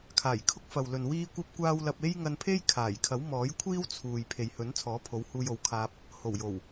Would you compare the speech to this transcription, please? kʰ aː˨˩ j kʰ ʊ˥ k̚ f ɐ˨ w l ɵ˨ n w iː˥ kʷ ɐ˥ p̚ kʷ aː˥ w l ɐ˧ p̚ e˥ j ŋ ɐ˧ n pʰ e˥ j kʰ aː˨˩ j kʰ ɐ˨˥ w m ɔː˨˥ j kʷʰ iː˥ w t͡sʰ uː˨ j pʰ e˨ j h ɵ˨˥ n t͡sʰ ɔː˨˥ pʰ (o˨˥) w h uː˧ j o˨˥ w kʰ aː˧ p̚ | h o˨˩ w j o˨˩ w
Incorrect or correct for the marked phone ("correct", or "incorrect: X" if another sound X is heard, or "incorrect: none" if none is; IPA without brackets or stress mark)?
correct